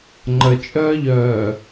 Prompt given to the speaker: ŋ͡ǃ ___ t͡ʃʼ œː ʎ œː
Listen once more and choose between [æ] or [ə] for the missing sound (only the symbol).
ə